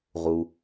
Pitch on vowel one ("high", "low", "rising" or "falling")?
low